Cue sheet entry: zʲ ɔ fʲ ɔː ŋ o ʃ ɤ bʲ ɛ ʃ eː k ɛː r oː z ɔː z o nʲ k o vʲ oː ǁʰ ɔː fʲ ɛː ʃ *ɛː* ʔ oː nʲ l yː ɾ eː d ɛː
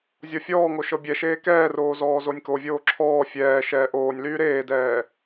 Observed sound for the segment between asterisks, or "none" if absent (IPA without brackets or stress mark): ɛː